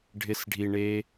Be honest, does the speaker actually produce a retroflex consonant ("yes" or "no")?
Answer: yes